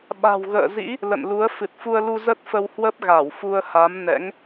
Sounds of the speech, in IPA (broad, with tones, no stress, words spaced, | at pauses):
ɓa̤˨˩wɣə̰ː˧˨zḭ˧˥ | lə̰˧˨nlu˨˦ə̯ fɨ˨˩t̚fu˧ə̯lu˧ zə˦˥t̚fə˧whwə˦˥p̚ ɣa˧˩wfu˧ə̯ha˨˦m nɛ̰˧˥ŋ